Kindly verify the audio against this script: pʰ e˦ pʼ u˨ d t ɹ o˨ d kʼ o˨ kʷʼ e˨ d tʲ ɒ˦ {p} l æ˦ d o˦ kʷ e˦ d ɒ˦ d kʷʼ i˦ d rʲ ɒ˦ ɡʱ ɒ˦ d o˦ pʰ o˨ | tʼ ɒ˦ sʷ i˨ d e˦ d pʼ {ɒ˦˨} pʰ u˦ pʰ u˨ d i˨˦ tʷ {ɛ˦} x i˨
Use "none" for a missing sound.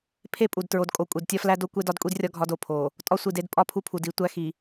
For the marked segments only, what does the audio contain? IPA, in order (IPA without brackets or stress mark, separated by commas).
f, ɒ˦˨, æ˦